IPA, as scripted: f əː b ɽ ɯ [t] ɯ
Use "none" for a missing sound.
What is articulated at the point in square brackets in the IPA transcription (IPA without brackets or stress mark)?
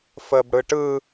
ʈ